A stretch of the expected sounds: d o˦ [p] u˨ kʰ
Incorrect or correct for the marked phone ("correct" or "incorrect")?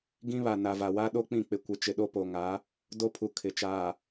incorrect